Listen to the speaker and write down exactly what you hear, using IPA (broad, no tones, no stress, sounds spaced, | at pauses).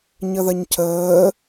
ɲ ə ð ɐ ɲ cʰ əː